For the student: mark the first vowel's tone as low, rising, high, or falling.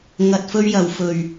low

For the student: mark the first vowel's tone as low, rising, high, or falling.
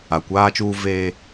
low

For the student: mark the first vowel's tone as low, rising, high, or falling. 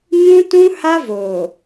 high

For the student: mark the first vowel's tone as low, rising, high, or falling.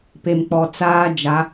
low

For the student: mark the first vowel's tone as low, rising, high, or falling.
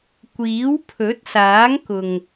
rising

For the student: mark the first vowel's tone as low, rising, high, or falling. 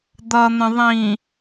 low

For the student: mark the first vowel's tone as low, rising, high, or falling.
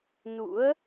rising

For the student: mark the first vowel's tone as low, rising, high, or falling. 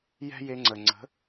high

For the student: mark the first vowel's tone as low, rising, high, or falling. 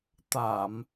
low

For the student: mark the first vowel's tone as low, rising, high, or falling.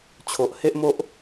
low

